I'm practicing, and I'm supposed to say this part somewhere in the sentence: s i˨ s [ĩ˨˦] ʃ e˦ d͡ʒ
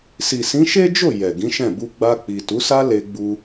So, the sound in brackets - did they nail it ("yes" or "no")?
yes